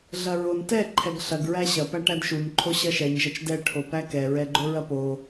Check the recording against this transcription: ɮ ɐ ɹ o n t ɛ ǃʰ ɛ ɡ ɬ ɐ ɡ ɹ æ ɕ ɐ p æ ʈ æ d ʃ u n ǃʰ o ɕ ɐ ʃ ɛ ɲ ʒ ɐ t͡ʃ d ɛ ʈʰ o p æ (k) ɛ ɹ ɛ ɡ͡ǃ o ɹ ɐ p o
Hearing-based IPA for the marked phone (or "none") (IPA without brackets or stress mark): k